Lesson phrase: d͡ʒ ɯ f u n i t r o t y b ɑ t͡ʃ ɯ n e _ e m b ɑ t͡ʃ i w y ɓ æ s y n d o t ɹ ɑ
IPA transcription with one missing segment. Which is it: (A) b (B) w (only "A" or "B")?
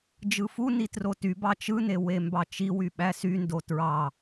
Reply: B